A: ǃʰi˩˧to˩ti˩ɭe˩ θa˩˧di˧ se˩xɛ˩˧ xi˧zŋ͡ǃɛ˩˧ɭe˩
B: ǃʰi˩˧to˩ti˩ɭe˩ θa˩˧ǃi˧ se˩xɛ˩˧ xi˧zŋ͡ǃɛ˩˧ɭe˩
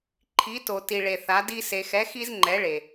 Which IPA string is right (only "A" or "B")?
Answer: A